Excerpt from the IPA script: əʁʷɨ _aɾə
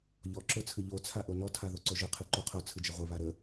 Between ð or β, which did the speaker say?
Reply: β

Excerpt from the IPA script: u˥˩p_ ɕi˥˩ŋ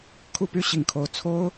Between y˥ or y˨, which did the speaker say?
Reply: y˥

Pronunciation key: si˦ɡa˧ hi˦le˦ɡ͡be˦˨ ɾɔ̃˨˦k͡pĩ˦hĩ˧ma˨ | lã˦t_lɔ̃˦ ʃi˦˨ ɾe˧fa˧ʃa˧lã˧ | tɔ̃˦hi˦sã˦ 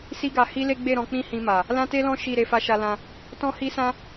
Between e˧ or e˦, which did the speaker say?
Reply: e˦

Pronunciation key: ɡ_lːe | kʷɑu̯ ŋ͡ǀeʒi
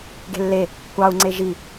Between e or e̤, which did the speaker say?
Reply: e̤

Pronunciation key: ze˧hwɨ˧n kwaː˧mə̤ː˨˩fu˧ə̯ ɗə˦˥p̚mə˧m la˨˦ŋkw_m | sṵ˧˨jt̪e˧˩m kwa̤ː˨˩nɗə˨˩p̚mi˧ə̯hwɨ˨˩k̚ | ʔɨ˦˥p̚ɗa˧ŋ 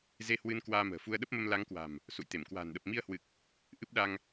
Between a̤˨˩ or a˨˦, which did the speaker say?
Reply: a̤˨˩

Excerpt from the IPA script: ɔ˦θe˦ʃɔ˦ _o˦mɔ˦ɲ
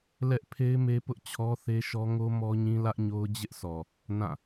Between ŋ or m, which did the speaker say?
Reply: ŋ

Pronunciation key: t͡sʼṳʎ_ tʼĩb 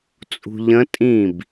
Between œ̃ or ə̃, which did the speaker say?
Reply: ə̃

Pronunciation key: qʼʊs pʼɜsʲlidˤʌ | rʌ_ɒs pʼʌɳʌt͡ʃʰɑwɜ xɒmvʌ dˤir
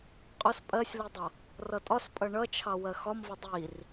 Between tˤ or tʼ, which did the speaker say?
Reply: tʼ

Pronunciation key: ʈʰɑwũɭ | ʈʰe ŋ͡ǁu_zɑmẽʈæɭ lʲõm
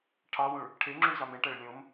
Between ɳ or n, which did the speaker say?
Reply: ɳ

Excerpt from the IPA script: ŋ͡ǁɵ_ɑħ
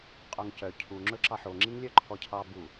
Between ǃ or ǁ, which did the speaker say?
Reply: ǁ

